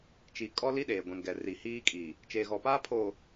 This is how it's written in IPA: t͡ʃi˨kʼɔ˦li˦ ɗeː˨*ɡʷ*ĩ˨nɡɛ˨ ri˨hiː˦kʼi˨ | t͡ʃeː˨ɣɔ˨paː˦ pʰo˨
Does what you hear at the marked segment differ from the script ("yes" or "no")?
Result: no